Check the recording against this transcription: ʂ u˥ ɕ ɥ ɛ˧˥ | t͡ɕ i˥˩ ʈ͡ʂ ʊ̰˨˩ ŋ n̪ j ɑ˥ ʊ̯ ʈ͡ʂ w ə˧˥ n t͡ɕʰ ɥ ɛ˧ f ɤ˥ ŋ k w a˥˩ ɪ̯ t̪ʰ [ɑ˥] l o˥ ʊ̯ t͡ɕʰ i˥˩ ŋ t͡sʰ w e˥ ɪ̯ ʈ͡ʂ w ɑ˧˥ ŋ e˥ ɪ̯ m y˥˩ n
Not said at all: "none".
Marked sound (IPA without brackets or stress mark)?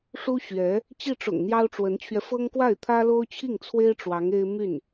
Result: ä˥